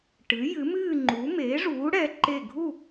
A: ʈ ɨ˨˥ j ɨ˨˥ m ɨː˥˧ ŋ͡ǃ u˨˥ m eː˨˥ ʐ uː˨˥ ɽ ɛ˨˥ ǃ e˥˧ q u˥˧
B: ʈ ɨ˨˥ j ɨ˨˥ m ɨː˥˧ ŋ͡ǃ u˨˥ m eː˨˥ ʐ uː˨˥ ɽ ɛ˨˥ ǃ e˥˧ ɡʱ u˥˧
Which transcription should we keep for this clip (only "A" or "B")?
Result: B